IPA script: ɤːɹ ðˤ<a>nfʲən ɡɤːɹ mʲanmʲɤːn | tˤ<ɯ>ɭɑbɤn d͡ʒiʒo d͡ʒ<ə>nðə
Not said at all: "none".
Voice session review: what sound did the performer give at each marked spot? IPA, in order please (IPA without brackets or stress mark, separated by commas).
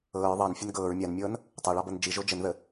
ɑ, ɤ, ə